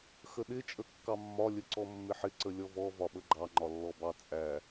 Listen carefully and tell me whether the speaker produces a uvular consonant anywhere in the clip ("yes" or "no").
no